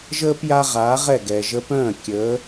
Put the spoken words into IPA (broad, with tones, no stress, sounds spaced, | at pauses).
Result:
ʒ əː˥ p j a˥ ʁ aː˩˥ ʁ ɛ˥˩ ɡ ɛ˩ ʒ ə˧ p œ̃ː˥˩ kʲ əː˩˥